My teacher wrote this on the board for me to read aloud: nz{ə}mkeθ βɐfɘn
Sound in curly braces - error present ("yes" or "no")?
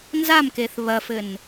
yes